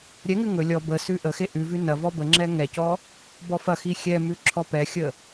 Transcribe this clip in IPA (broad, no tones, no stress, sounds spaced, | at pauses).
ɾʲ ɛ ŋ ʉ ŋ ɵ lʲ ɔ b ə s ʉ ʔ ə x e ʔ ʉ v ʉ n ɐ v ɔ b ə ŋ͡ǁ ɛ ŋ ɛ c ɔ | b ɔ f ɐ x i xʲ ɛ m ʉ ǁʰ ɔ p ɛ xʲ ə